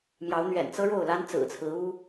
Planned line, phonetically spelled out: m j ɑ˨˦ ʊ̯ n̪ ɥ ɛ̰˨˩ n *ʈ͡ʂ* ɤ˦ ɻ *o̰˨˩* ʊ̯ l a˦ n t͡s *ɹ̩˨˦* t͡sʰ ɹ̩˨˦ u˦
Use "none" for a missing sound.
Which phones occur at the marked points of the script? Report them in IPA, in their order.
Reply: t͡s, o˥˨, ɹ̩˨˩

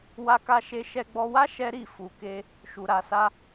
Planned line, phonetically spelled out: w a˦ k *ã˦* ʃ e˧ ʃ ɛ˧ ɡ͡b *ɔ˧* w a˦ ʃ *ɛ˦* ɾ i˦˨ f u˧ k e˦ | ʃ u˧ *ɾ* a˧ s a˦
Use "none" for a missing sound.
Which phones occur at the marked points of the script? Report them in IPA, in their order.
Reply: a˦, ɔ˧, ɛ˦, ɾ

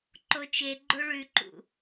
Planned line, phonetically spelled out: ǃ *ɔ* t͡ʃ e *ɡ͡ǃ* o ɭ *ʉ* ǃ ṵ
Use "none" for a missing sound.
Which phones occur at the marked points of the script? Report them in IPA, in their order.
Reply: o, ɡ͡ǃ, ʉ

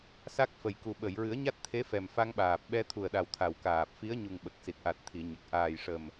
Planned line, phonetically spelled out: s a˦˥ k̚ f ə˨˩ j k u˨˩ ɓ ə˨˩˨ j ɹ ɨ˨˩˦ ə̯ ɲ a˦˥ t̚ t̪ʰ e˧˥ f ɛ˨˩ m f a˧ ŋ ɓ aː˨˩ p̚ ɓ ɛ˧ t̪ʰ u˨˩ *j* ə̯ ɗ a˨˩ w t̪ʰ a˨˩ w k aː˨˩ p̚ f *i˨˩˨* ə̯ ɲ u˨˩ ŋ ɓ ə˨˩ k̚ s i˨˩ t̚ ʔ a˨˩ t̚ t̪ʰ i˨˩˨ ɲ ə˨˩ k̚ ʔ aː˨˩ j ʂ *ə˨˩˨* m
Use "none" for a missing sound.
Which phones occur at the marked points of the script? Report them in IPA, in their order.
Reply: none, i˧˥, ə˨˩

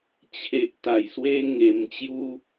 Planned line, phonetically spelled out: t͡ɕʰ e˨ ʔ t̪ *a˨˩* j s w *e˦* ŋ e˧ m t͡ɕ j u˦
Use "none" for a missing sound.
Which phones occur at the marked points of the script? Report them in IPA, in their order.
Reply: a˨˩, e˧

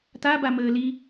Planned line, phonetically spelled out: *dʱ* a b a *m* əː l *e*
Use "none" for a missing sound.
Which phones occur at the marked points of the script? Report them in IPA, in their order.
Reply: t̪, m, i

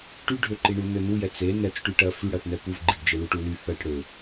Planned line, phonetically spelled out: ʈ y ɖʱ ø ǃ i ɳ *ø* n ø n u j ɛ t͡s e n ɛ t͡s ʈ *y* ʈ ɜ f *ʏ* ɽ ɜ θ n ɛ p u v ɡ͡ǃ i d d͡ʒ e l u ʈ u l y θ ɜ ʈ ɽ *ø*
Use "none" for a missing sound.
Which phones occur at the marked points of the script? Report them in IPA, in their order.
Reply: u, y, y, ø

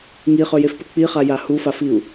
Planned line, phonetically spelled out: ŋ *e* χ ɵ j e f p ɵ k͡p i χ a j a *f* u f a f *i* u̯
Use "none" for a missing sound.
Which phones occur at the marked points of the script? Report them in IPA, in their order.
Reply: i, h, i

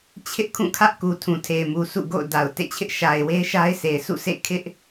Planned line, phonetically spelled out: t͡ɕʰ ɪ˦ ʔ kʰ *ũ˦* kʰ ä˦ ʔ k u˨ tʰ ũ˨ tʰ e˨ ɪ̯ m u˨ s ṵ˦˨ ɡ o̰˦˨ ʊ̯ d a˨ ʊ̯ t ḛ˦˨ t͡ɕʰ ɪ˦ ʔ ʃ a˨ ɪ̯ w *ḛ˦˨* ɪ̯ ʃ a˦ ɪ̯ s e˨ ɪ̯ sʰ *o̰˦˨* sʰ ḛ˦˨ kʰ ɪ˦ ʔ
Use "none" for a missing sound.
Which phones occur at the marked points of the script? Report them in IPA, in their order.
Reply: ũ˦˨, e˦, ṵ˦˨

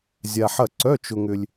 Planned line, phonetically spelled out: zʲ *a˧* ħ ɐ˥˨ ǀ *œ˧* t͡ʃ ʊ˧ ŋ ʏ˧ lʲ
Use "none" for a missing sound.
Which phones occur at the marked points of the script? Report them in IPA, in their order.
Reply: a˧, œ˧˥˧

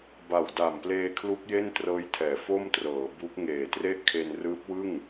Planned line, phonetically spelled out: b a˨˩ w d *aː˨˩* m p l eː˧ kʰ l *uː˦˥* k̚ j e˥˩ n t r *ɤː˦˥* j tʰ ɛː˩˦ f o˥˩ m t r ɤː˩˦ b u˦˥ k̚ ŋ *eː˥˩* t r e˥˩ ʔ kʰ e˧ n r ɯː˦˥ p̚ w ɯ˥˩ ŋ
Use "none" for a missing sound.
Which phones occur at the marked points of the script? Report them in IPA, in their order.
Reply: a˨˩, u˦˥, ɤː˦˥, eː˨˩

